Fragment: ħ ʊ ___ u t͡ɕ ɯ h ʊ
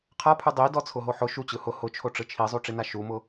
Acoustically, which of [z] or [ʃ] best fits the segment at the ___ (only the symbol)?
ʃ